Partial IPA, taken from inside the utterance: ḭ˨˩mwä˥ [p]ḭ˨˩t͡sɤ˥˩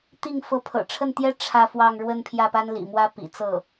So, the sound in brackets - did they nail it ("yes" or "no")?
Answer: yes